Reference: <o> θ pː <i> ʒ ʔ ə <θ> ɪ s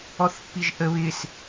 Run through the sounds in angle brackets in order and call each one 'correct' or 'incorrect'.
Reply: incorrect: ɔ, correct, incorrect: β

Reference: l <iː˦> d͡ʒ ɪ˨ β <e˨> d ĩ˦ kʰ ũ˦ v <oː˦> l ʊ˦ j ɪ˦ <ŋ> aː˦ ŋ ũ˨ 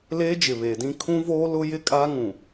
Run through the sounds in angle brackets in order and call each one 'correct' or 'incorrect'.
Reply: incorrect: eː˦, correct, correct, incorrect: kʼ

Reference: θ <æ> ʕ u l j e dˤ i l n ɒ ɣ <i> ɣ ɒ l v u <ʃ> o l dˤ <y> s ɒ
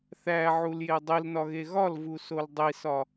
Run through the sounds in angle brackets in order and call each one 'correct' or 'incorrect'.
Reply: correct, incorrect: e, incorrect: s, incorrect: i

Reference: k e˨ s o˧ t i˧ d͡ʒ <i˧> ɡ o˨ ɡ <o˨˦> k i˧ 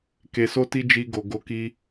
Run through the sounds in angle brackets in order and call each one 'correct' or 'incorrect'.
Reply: correct, correct

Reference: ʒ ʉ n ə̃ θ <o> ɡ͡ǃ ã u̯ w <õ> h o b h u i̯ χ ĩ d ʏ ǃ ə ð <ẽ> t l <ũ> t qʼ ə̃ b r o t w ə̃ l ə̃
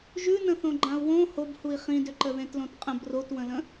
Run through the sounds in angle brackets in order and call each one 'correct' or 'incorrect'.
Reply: incorrect: õ, correct, correct, incorrect: õ

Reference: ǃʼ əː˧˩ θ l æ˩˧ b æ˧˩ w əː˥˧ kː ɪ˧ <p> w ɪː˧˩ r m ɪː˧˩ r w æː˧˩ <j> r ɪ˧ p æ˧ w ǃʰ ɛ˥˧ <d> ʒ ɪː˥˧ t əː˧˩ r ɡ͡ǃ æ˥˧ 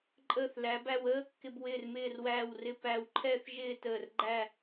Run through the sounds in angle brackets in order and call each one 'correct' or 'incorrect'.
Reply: incorrect: b, incorrect: w, incorrect: θ

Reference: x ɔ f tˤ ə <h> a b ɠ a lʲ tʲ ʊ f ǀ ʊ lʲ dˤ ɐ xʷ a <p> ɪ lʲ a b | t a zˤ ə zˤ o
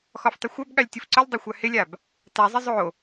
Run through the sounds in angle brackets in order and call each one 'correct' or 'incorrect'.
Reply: incorrect: xʷ, incorrect: h

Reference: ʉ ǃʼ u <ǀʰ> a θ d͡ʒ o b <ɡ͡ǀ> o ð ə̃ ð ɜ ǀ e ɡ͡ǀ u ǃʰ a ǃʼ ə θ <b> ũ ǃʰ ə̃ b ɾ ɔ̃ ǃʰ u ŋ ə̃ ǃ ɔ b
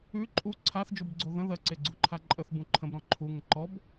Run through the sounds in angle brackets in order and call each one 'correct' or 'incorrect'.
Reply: correct, correct, correct

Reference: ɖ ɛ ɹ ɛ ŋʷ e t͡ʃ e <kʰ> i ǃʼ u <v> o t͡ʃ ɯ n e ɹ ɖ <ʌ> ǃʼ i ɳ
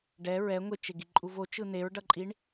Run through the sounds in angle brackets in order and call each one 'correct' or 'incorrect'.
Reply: incorrect: ɡ, correct, correct

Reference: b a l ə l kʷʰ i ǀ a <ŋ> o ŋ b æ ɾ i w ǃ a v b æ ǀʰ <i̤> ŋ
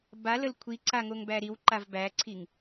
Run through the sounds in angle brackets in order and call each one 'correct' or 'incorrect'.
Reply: correct, incorrect: i

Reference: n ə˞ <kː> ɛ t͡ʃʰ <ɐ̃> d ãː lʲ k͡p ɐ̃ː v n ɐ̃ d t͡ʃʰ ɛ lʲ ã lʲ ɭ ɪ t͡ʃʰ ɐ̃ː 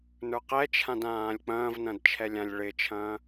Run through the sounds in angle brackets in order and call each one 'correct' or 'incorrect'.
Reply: incorrect: q, incorrect: ã

